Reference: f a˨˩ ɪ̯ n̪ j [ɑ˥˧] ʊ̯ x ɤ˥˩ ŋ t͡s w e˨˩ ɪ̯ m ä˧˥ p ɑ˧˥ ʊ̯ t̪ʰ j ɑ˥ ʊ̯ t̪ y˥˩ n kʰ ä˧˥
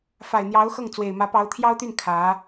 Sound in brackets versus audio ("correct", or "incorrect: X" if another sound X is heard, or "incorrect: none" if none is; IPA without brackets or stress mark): incorrect: ɑ˧˥